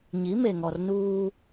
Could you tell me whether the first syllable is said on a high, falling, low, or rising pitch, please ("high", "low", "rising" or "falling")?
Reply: rising